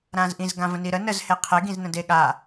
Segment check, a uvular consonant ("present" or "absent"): present